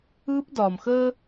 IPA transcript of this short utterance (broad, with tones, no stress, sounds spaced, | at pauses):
ɯː˦ p d ɒː˨ m x əː˦